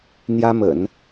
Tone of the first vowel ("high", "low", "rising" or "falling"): high